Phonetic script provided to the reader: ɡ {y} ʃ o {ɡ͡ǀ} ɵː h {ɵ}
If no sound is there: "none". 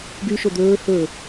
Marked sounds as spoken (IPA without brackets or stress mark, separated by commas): y, d̪, ɵ